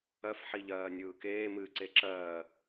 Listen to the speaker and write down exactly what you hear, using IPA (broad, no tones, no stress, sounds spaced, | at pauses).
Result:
ɜ f ħ i ʎ ɜː nʲ ɯː k eː m ɨ ǀ e ǁ ɜː